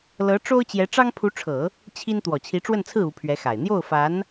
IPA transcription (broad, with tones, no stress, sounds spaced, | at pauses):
l ɤ˧˥ ʈ͡ʂ o˥ ʊ̯ t͡ɕ j ɛ˧˥ ʈ͡ʂ ɑ˥ ŋ pʰ u˧˥ ʈ͡ʂʰ ɤ˨˩˦ | t͡ɕʰ i˥ n t̪ w ɔ˨˩ t͡ɕʰ i˧˥ ʈ͡ʂ w ə˥˧ n t͡sʰ ɹ̩˥˩ u˧˥ pʰ ɥ ɛ˧˥ x a˨˩ ɪ̯ n̪ j o˥˩ ʊ̯ f a˧˥ n